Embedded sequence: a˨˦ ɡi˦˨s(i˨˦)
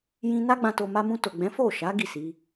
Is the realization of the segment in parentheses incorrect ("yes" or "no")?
no